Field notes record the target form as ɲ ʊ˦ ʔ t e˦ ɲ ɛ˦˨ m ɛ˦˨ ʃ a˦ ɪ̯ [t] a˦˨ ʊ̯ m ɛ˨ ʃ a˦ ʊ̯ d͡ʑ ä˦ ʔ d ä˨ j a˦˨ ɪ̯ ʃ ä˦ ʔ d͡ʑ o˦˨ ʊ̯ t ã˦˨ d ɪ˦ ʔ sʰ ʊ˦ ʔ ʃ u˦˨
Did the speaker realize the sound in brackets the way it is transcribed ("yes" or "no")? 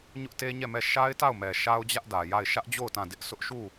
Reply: yes